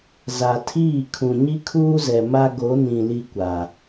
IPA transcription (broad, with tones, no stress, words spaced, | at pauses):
za˨tʰiː˦˨ kʰũ˨ɲi˦kʰuː˦zɛ˨ ma˦ ɡo˨˦nĩ˨ li˦kʷa˨